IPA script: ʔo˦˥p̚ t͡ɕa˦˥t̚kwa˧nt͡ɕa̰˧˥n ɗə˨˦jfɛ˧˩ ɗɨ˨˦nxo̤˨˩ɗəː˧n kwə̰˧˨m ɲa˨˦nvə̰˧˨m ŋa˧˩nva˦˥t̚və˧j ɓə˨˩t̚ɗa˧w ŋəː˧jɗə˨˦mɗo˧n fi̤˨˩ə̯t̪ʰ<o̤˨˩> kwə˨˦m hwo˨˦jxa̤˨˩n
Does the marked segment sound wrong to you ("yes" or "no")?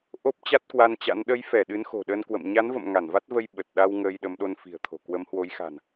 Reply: no